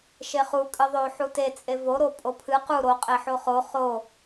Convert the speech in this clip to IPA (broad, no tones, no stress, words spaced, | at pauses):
ʃeχu kʼɨðˤo ħute t͡sʼevo ɾopʼopʰɨ qu ɾo qʼeħoχo χo